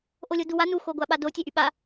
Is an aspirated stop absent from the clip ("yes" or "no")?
yes